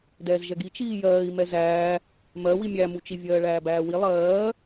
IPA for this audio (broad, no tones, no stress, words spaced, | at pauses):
dɛːzʒɛɡi t͡ʃiːjɜːi̯ mɛzæː | mɜwi mʲæmut͡ʃi vʲɜːɭæːbæːwi lˠɜː